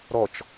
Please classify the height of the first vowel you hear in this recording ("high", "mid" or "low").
mid